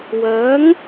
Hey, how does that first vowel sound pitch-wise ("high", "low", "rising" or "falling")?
rising